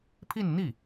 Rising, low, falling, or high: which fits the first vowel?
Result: falling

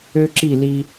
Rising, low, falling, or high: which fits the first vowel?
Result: high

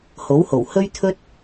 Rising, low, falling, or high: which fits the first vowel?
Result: rising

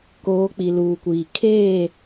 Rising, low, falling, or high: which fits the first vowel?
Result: rising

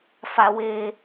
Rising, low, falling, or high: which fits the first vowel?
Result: high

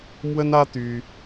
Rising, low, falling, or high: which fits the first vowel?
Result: high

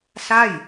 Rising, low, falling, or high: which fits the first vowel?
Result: falling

